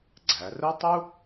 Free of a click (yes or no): no